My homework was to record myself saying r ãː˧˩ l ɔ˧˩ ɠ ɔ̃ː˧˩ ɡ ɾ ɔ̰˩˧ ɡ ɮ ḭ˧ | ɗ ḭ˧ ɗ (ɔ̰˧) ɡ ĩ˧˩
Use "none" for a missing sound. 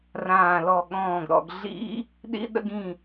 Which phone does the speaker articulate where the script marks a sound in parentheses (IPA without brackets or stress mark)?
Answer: ə̰˧